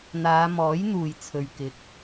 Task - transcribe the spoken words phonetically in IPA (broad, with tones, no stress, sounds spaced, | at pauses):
n̪ aː˨˧ m ɔː˨˥ j n̪ uː˨ j t͡sʰ ɵ˨ ɥ k ɪ˨ k̚